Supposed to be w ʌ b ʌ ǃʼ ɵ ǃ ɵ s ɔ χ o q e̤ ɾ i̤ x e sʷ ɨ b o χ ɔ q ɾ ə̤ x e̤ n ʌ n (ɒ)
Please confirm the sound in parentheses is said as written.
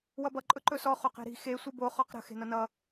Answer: no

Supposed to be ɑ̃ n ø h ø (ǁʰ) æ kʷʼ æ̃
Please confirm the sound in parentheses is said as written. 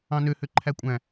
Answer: no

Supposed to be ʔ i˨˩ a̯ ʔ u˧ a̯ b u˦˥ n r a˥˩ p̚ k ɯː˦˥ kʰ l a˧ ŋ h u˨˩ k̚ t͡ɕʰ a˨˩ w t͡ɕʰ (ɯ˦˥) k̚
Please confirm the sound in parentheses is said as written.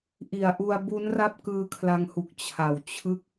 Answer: yes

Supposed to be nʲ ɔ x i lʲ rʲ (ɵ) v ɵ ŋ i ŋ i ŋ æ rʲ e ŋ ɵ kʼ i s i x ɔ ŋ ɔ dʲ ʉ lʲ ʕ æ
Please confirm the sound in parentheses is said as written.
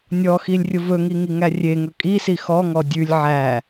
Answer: no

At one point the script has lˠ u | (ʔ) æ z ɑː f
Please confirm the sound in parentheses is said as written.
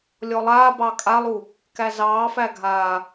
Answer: no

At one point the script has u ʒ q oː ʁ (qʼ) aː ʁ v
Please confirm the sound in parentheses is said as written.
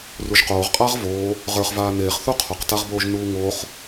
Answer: yes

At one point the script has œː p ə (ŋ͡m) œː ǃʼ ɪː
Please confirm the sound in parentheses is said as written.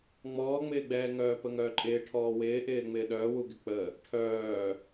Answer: no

